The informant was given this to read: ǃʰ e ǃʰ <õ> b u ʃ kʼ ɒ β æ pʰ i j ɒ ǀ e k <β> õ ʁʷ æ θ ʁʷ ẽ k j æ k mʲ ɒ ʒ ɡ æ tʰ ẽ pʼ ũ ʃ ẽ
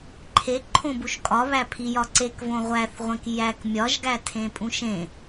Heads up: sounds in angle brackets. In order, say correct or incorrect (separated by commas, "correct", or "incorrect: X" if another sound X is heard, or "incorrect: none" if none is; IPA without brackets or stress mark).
correct, incorrect: v